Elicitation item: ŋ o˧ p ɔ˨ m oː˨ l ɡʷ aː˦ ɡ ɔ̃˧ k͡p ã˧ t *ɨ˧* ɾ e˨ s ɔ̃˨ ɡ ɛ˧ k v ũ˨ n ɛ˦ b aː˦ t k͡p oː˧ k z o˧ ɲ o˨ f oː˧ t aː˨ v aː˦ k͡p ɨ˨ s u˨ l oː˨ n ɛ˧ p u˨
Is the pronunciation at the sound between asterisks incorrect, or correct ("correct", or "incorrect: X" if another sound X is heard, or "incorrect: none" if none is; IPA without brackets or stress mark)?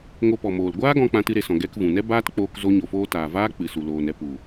correct